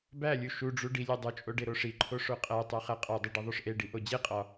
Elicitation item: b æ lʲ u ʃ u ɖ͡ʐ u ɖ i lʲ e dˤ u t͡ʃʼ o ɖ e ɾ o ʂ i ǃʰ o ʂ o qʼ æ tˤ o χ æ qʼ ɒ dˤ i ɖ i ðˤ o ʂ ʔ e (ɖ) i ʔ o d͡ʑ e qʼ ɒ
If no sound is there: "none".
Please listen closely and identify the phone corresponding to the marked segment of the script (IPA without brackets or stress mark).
ɖ